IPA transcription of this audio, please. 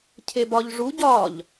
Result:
cʰ e b ɒ ʎ ʐ u ɟ ɒ ʎ

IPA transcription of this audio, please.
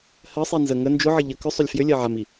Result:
h ɜ sˤ i n z ə ŋ ə n d͡ʒ ʊ ʕ ə ʎ ə k ʏ sˤ ʏ lʲ f j ʏ lʲ ɜ ʕ a m i

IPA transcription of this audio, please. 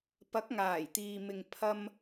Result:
p ɐ˨˥ k̚ ŋ aː˨˩ j t̪ iː˨ m ɪ˨ ŋ pʰ ɐ˧ m

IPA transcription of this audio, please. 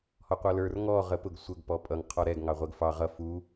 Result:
h ɔ qʷ ʌ l ə˞ r ŋ ɔ ʁ ə p ʊ ɡ sʷ ə ɡ p ɔ pʼ ʌ ŋ qʰ ɔ ɾ ɛ ɡ ŋ ɑ ʁʷ ɛ ɡ f ɑ ʁ ʌ f u

